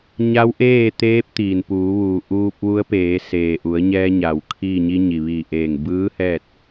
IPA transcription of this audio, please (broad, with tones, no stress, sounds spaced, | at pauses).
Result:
ɲ a˧˥ w ʔ eː˥˨ t̪ eː˧˥ p̚ t̪ iː˩ n p uː˩˧ ʋ uː˩ ʔ uː˧ p̚ ʋ u˧˥ ə̯ p eː˩˧ s eː˩ ʔ u˩˧ ə̯ ɲ ɛː˧ ɲ a˩ w kʰ iː˥˨ ɲ i˧ ɲ i˩ ʋ iː˧˩ ʔ eː˧˩ ŋ b ɯː˧˥ h ɛː˥˨ t̚